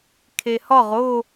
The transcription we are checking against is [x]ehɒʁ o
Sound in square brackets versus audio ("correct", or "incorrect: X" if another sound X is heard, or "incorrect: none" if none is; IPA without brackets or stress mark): incorrect: kʰ